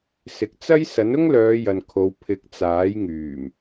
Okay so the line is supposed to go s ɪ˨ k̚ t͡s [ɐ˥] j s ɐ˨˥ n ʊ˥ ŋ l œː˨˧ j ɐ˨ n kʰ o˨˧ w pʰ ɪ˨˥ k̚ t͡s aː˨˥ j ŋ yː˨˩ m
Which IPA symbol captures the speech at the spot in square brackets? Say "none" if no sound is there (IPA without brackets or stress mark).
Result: ɐ˥